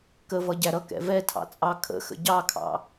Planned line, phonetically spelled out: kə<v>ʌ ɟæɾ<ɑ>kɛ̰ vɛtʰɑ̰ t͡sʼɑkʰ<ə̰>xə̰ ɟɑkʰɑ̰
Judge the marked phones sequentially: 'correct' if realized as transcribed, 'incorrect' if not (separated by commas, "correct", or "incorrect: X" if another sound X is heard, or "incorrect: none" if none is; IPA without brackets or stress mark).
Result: correct, incorrect: ʌ, correct